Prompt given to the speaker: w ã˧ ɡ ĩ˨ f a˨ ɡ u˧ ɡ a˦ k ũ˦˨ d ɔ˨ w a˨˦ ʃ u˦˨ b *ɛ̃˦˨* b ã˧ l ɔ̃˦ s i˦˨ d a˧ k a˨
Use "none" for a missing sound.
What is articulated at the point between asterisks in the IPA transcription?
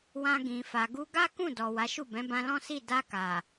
ɛ̃˨˦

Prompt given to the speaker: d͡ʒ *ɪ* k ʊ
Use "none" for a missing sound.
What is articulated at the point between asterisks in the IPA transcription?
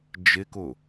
ɪ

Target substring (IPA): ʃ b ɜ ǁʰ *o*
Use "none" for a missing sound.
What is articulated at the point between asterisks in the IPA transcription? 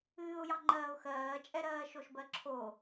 o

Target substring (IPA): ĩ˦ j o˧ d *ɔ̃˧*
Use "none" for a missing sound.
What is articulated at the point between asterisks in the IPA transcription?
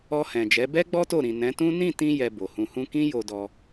ɔ˧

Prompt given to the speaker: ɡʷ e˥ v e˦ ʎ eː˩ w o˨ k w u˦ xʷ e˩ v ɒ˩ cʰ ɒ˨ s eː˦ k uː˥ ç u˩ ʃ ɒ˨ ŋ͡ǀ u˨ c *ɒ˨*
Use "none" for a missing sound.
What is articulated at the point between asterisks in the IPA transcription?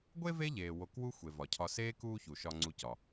ɒ˩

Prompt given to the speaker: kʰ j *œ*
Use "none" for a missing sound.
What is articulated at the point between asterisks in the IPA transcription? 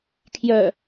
œ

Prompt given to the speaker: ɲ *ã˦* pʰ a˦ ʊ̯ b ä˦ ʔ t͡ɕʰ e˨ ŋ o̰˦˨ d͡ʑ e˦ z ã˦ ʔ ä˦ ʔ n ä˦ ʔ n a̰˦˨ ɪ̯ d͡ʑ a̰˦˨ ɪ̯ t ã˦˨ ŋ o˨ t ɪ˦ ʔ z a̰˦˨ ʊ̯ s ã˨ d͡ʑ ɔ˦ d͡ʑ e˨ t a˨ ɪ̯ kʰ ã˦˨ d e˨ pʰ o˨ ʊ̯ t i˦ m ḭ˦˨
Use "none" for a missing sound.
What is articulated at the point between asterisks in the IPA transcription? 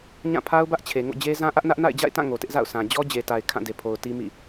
ã˦˨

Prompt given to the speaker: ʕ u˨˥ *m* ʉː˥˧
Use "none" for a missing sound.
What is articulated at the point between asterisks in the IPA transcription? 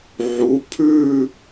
pʰ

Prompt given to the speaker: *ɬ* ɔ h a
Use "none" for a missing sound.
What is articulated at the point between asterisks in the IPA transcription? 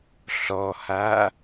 ɬ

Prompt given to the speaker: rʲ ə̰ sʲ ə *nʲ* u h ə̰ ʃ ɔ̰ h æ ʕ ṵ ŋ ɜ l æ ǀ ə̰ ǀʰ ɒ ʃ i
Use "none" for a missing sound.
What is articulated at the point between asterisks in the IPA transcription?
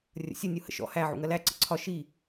nʲ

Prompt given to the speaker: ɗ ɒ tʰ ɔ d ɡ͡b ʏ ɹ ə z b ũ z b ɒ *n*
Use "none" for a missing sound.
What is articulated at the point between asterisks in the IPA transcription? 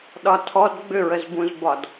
d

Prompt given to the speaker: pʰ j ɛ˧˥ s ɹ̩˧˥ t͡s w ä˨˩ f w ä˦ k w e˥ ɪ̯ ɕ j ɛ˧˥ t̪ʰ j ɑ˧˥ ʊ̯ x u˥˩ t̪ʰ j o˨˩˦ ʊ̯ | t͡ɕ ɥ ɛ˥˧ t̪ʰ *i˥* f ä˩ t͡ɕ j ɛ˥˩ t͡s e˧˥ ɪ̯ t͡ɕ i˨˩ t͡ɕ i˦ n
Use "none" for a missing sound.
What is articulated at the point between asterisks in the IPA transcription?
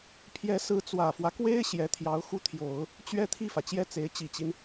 i˥˩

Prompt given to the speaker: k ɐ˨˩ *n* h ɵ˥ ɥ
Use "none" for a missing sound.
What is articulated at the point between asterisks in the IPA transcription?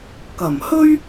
m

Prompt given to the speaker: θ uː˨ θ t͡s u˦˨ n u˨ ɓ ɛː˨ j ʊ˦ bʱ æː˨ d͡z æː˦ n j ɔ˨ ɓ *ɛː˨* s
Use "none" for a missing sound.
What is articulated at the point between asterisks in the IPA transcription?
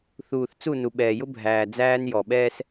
ɛː˦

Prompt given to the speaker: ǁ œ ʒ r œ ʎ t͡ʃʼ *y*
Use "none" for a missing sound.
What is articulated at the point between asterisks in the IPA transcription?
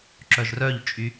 y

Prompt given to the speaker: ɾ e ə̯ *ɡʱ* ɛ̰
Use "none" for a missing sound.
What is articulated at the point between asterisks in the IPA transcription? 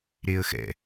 x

